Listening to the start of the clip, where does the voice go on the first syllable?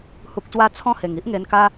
low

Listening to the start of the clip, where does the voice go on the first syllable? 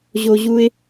high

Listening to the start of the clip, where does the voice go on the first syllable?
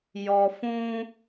low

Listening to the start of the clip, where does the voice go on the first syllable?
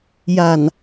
low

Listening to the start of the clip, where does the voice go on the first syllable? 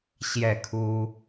falling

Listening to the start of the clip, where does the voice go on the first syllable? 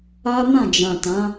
high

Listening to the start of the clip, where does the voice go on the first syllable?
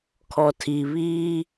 low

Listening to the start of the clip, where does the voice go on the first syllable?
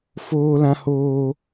high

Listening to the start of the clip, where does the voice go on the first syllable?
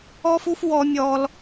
high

